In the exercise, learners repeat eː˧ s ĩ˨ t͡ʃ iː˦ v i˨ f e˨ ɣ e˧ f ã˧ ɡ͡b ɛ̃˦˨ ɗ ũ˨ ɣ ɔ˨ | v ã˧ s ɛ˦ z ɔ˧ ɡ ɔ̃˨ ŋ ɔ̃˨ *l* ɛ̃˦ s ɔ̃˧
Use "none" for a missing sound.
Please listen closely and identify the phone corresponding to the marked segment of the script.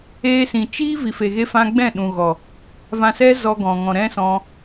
ɾ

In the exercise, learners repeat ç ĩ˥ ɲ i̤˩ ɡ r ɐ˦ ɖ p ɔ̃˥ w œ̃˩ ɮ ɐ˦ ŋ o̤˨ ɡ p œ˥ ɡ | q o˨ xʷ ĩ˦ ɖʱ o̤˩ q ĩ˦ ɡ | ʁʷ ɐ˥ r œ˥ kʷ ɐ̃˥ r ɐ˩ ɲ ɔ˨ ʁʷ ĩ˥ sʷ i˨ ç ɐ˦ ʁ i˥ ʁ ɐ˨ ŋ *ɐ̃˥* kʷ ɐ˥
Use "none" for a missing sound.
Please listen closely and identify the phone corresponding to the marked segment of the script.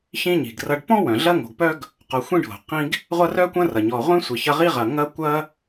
ɐ˥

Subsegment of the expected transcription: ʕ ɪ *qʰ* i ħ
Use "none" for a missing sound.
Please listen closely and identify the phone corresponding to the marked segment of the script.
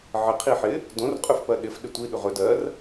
qʰ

